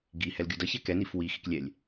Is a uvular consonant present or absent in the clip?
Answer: absent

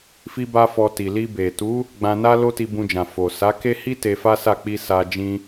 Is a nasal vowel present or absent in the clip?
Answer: present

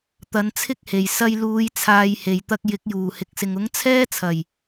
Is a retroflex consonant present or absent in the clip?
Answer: absent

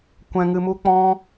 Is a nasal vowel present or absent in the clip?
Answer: present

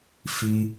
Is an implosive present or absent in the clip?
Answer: absent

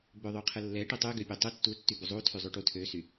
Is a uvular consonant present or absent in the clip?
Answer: present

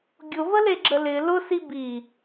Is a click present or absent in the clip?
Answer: present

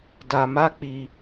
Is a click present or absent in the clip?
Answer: absent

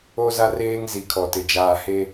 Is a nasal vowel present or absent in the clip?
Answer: absent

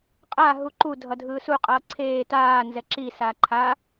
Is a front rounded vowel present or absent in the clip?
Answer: absent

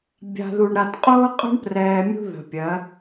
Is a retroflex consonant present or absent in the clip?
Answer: present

